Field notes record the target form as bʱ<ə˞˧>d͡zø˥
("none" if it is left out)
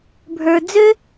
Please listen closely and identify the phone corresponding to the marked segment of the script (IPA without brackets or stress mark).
ə˞˧